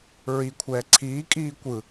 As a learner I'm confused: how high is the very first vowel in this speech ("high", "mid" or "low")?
high